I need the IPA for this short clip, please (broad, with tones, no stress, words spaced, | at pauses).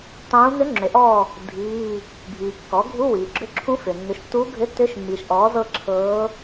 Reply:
tˤũː˧˥ n̪ʏ˧˥ŋ͡ǁʏ˩˥ʔɔː˦˨ | dʱiː˧˥˧ | bʱiː˩ kːɔ˩˥ɡʱu˧˥˧wiː˩ ɡ͡ǁʏ˧˥˧ǁʰũ˧˥fʏː˩ nːʏ˩˥ʃtːuː˧˥ɡʱʏ˧˥˧ tːʏː˧˥ʃmːiː˩ʃ ʔɔː˩˥zɤ˦˨ ǁʰɤː˧˥